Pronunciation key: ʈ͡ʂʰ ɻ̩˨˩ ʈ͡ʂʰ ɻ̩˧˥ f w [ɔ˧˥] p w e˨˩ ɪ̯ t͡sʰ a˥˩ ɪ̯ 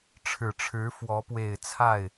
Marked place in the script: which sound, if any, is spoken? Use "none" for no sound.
ɔ˧˥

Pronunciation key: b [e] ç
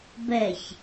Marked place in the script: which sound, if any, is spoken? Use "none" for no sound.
ɛ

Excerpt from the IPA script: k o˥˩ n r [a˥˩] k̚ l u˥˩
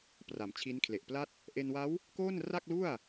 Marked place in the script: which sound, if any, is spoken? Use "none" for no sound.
a˥˩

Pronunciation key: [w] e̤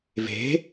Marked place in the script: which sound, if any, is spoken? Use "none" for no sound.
v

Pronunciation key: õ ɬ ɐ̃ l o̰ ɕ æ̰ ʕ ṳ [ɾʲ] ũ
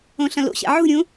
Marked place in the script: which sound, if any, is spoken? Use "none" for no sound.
ɾʲ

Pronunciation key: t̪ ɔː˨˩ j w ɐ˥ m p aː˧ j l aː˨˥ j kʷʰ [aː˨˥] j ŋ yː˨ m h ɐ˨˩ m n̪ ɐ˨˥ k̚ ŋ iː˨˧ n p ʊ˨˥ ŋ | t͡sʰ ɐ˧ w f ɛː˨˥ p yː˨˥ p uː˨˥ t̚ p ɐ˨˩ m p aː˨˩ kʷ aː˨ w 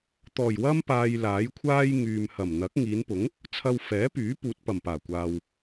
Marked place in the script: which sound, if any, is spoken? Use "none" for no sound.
aː˥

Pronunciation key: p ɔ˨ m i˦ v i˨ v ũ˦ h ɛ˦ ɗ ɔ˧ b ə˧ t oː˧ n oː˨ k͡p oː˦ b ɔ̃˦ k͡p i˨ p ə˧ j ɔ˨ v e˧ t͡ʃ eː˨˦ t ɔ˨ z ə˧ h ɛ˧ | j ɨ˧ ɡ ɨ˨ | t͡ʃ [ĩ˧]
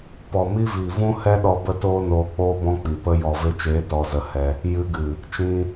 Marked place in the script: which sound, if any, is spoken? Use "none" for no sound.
ĩ˧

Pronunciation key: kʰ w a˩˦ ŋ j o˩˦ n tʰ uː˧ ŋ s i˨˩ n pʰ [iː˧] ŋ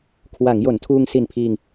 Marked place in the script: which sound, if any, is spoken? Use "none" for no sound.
iː˧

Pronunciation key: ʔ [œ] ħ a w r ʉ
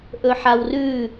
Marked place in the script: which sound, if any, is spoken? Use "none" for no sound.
ɵ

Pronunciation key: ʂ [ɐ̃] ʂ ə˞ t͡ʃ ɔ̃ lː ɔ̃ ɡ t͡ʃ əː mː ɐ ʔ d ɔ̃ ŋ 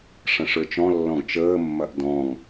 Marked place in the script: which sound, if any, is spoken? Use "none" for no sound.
ɐ̃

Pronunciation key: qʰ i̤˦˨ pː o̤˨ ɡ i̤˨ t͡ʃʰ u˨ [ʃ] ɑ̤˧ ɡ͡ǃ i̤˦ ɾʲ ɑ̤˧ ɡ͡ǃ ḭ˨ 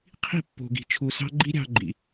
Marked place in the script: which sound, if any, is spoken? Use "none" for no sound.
s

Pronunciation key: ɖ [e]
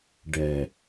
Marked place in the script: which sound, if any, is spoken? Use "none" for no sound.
ɛ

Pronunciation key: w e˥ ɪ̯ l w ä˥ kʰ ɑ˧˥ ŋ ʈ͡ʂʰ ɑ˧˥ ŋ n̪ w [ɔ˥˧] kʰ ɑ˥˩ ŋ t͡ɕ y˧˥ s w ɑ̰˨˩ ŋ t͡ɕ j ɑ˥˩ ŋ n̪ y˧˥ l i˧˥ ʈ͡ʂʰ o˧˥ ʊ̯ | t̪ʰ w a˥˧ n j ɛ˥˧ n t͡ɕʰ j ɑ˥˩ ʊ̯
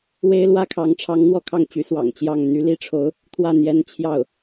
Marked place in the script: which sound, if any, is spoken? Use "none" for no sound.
ɔ˥˧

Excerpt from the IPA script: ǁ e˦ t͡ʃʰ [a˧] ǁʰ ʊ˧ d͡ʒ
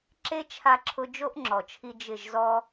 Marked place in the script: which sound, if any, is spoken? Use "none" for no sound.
a˧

